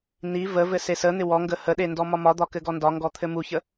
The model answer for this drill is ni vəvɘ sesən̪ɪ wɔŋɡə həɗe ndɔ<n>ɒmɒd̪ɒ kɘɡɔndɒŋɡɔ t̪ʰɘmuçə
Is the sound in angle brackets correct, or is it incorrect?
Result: incorrect